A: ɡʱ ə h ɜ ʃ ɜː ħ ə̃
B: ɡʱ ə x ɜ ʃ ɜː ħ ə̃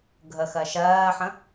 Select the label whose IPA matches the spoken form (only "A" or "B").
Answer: B